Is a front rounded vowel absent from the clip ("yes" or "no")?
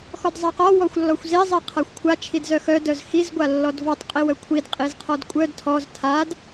no